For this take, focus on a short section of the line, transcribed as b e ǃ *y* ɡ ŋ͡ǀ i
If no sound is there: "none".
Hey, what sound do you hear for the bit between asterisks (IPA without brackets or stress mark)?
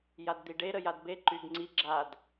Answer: y